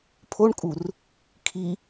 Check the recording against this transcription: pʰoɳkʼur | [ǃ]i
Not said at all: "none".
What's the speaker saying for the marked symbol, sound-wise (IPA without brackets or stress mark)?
kʰ